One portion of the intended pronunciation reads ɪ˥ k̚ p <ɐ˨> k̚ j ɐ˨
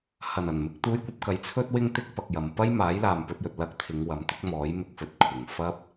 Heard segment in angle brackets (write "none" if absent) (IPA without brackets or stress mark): ɐ˨